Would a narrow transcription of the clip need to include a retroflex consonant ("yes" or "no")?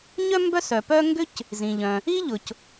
no